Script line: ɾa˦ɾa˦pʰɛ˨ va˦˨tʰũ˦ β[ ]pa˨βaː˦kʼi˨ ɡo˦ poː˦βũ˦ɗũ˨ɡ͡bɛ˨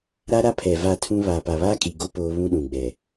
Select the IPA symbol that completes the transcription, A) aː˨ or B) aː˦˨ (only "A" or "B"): A